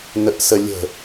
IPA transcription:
n ə ʔ s ə lʲ ə̤

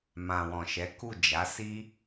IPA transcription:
m ã˨ w ɔ̃˨ ʃ ɛ˨˦ k u˦˨ d͡ʒ a˨˦ s i˦

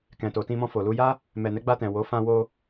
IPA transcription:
k ɛ̃˨ t o˨ t ĩ˧ m ɔ̃˧ f o˨ l u˧ j a˦ | m ɛ˨ n ɛ˨˦ ɡ͡b a˧ t ɛ̃˨ w o˨˦ f ã˧ w o˧

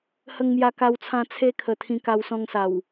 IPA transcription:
h ə˧ ŋ m j a˧ k a˧ w t͡sʰ ã˧ t͡sʰ e˦ kʰ ə˧ t̪ʰ ĩ˧ k a˧ w s ɔ̃˧ ŋ s a˨˩ w

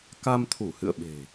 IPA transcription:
k a˧ m t̪ʰ u˧˩ h ɨ̰˧˨ ə̯ ɓ e̤˨˩

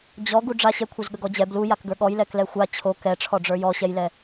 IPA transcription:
d͡ʑ ɔ ɡ u ɖ͡ʐ a ɕ ɛ kʷʰ ɛ z ɠ ə ɡ ɔ d͡ʑ ɛ b l u j a k ɡ ə˞ ɠ ɔ j l ɛ k l ɛ xʷ a t͡ɕʰ o k ɛ ʈ͡ʂʰ ɔ ɖ͡ʐ ə˞ j ɔ ɕ ɛ j l ɛ

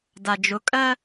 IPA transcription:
d a d͡ʒ ʊ kʼ ɜ

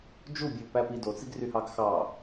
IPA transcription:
d͡ʒ u bʲ e ʊ̯ p æ p i d o t͡s i ɡ r y h ɑ ɡ x ɑ

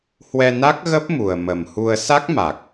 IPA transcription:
h w ɛ˧ n a˦˥ k̚ ɣ ə˦˥ p̚ m u˨˩ ə̯ m ə˨˩ m h u˧ ə̯ s a˦˥ k̚ m a˨˩ k̚

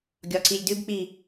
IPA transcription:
ɡʲ ɒ ǀ i lʲ d ʉ b k͡p i

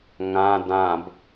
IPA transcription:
ŋ ã d ã b

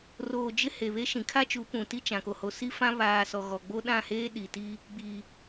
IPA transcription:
r oː˨ d͡ʒ ɪ˦ h e˨ β e˦ ʃ ĩ˨ kʰ a˦ t͡ʃ u˨˦ p ũ˨ t i˦ t͡ʃ ã˨ k o˨ h o˨ s i˦ f ã˦ β aː˨ s ɔ˨ ɣ ɔ˨ ɡ͡b o˦ ɗ ã˦˨ h eː˦ ɗ i˨ t i˦ | ɡ͡b iː˨

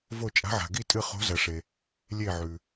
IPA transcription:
v o˧˩ t͡ʃʼ a̤˨˦ ʕ a̤˩ ɡ i˧˩ tʼ ɨ˧˩ χ o̤˨˦ z ɐ˩ ʂ e˩ | lʲ e˧˩ ʕ ʉ˩

